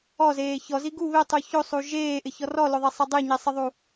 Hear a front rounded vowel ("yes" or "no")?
no